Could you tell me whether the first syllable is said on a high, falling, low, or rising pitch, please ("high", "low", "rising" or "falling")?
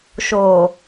low